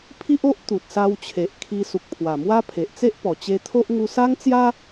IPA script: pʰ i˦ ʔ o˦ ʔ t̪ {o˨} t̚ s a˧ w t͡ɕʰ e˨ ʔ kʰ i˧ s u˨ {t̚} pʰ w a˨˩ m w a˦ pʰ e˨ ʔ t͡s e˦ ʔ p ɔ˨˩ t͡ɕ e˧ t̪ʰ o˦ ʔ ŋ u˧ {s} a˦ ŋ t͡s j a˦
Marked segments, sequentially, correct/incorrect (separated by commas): incorrect, incorrect, correct